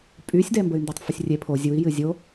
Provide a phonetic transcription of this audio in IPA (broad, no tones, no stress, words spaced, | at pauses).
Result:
pʼysʲdɛmbəy̯ ndɛtˤfəsʲrʲe pʰo zʲui̯ jɨzʲo